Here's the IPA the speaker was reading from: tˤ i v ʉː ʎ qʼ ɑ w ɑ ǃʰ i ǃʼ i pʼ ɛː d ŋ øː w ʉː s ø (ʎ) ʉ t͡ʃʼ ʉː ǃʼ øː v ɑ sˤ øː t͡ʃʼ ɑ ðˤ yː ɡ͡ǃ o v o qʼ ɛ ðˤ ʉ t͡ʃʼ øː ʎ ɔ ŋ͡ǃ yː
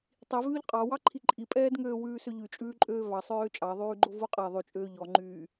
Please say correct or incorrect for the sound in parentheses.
correct